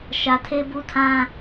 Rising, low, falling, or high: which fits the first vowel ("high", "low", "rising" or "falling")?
low